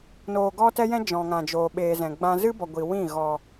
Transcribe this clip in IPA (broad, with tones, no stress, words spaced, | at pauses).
noː˧ɡɔ˦tɛ˦jɛ̃˦ d͡ʒɔ̃˨ŋã˨d͡ʒoː˨ ɓeː˧zɛ̃˨ɡ͡bã˦ zɨ˦bɔ˨ ɡʷi˨wĩ˦˨ ɣɔ˨